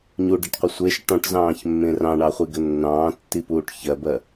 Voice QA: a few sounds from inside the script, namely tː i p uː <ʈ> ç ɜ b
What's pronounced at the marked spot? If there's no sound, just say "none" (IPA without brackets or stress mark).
ʈ